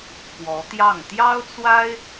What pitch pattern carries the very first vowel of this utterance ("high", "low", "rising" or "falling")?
rising